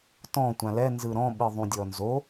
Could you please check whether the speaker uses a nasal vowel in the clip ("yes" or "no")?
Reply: yes